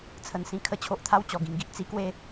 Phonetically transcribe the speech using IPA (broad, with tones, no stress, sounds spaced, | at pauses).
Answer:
t͡sʰ ə˧ n s ĩ˥˧ kʰ ə˦ t͡ɕʰ o˨ ʔ t̪ʰ a˥˧ w t͡ɕ ɔ˨˩ ɡ ĩ˧ ŋ ɡ i˨ ʔ t͡s i˦ k w e˥˧